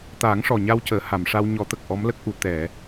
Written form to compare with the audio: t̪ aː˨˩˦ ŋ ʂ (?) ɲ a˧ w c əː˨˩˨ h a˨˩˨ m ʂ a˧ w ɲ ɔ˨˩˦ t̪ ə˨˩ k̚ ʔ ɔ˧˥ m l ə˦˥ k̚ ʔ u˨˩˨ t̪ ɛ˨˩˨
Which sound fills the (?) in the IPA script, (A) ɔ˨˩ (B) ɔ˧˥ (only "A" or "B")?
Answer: A